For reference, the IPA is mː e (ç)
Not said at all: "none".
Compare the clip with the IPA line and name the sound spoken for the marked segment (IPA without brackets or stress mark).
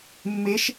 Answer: ʃ